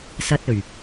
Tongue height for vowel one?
low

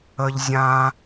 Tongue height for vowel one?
mid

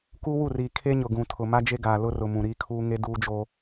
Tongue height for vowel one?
high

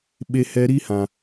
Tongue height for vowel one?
mid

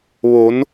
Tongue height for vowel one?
mid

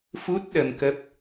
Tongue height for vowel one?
high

